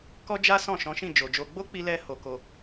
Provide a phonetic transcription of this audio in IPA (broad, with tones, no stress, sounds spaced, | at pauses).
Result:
k ɔ˦ d͡ʒ a˦ s ɔ̃˦˨ ʃ ɔ̃˨˦ ʃ ĩ˦˨ d͡ʒ o˨ d͡ʒ o˧ ɡ͡b o˦ k͡p i˧ l ɛ˧ h o˧ k o˧